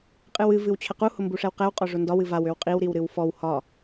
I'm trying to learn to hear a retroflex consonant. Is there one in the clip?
yes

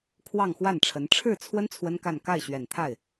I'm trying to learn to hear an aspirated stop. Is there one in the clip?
yes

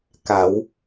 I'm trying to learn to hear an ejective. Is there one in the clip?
no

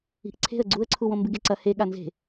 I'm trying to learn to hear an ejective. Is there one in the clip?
no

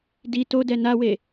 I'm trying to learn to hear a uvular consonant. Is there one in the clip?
no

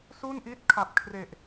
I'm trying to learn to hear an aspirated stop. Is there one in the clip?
yes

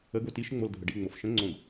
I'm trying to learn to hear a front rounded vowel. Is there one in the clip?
no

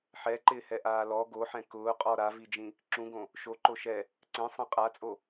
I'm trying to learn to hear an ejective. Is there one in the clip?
yes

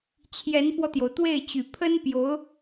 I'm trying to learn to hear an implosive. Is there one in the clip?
no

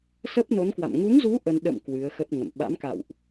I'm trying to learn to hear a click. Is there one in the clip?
no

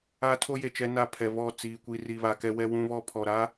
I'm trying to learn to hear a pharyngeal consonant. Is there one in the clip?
no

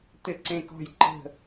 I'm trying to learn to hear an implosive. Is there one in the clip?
no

